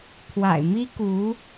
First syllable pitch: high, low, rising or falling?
low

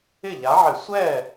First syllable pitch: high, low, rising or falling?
falling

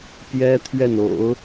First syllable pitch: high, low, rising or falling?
high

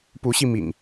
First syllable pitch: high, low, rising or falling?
rising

